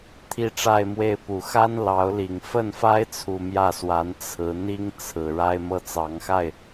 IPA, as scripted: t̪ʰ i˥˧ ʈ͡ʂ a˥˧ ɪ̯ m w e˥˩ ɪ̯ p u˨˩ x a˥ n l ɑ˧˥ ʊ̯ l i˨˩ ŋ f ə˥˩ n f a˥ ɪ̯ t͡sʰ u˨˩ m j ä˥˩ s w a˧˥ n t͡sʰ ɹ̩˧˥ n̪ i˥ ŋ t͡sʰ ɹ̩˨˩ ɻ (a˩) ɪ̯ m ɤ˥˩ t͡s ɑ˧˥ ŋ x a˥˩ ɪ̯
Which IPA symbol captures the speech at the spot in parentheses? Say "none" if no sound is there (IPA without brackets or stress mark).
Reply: a˥